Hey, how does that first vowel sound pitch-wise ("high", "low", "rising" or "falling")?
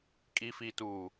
low